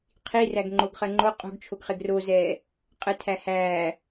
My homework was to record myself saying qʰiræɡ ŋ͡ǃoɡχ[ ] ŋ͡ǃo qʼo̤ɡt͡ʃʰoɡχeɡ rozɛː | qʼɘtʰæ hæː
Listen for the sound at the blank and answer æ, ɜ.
ɜ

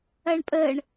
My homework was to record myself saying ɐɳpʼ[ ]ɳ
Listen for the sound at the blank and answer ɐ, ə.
ə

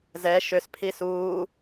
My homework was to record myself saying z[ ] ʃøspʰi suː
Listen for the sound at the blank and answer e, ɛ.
ɛ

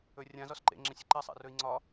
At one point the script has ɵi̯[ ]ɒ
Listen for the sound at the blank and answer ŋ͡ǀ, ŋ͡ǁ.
ŋ͡ǀ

